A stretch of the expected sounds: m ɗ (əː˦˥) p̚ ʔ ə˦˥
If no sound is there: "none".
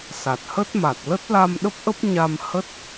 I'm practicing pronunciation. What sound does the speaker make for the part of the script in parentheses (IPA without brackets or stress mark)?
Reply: ə˦˥